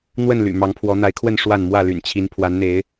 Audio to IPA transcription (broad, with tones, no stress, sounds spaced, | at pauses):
n̪ w ə˥˨ n l y̰˨˩ m ɑ˨˦ ŋ pʰ w ɔ˨˦ n̪ a˨˦ ɪ̯ kʰ w ə˥˨ n ʂ w a˥˨ n m w ä˥˨ l y̰˨˩ n t͡ɕʰ i˨˦ n pʰ w a˨˦ n n̪ e˨˦ ɪ̯